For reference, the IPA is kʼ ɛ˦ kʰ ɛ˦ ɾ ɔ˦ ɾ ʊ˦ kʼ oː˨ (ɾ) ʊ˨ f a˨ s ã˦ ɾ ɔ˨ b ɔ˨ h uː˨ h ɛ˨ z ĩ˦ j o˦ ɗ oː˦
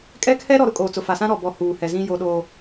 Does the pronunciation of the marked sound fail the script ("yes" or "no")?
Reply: yes